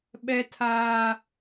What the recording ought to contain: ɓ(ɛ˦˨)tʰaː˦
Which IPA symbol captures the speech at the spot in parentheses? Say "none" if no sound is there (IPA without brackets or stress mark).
ɛ˦